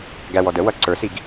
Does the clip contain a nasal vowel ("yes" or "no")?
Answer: no